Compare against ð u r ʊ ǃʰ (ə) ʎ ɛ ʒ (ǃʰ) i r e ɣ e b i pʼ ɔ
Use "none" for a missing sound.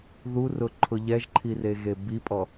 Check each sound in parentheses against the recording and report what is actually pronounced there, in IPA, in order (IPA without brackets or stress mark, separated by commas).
ʊ, ǃʰ